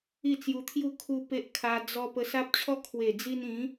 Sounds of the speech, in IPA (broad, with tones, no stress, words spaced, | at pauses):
i˥˧t͡sju˧t̪ʰju˥˧ kʰu˦pe˦ʔ kʰa˧ d͡zɔ˧ pə˧sa˦p̚t͡ɕʰɔ˦ kʰwe˨˩d͡zi˧nĩ˨˦